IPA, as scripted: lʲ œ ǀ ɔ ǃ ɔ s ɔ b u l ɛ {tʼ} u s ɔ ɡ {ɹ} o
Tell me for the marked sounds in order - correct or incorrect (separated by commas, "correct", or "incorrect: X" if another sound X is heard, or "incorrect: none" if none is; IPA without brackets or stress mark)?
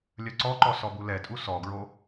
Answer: correct, correct